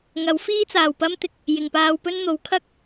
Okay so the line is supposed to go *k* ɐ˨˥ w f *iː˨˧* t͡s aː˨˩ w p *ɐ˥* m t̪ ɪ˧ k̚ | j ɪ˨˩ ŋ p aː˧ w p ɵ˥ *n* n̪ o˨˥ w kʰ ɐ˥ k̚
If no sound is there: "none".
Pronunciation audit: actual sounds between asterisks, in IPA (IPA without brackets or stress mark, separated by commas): ŋ, iː˥, ɐ˥, n